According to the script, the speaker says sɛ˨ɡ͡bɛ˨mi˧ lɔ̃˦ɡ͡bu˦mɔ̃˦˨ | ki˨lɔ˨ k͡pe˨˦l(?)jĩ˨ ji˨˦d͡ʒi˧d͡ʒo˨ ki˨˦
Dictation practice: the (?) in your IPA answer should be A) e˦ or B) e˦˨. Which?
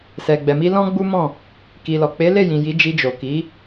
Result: B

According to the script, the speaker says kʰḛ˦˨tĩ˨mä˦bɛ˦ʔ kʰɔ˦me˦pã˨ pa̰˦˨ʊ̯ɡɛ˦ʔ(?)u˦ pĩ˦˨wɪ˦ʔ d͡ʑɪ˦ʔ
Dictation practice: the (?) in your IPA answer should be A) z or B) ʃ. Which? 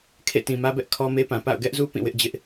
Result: A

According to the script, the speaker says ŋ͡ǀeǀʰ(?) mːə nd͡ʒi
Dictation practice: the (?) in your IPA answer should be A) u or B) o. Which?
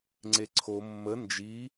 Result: B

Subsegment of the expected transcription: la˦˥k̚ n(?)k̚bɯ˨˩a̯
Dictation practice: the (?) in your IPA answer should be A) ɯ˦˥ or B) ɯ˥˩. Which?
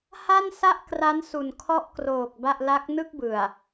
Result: B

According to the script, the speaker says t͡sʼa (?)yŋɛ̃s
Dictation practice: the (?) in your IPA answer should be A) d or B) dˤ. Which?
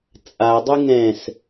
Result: B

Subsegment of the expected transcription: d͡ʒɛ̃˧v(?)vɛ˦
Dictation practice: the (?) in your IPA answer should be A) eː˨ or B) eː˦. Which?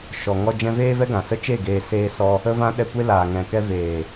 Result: B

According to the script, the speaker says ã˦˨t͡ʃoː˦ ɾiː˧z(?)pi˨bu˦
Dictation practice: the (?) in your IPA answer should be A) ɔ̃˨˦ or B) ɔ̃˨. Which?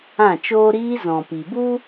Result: B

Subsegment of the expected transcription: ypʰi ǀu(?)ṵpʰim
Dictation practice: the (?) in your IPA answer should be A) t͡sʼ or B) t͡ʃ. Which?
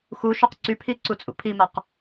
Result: A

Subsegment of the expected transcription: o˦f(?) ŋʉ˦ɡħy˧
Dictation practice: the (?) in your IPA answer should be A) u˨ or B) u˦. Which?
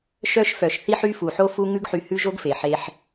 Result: B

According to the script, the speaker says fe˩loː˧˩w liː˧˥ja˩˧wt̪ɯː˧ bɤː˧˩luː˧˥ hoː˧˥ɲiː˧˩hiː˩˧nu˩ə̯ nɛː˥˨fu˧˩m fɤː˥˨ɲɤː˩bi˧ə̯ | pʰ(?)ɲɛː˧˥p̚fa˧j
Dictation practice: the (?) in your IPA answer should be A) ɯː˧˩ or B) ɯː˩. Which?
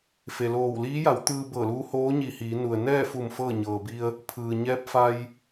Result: B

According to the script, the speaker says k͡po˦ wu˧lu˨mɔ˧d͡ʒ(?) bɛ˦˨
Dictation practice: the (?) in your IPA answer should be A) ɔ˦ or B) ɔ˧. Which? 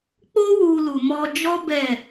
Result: A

